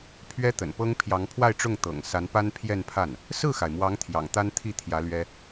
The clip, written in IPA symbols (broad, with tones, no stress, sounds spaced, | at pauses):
pʰ ɥ ɛ˥ t̪ ə̰˨˩ n p ɤ˥ ŋ pʰ j ɑ˧˥ ŋ pʰ w a˥˧ ɪ̯ ʈ͡ʂ ʊ˥˩ ŋ t̪ ɤ̰˨˩ ŋ s a˧˥ n p a˥ n pʰ j ɛ˥˧ n pʰ a˥˩ n | s ɹ̩˥˩ x a˩ ɪ̯ m w ɑ˧˥ ŋ t̪ʰ j ɑ̰˨˩ ŋ t̪ a˥ n t̪ʰ i˥˩ t̪ʰ j ä˧˥ l ɥ ɛ˥